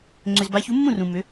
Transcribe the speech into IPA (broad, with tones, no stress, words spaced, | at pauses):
ŋ͡ǀʏ˨zba˨˥çu˨˥mːũ˥˨ rũ˨ mʏ˨˥